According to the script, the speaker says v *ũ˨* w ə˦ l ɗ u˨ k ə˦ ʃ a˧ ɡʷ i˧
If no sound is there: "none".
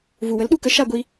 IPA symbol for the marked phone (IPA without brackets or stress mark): u˨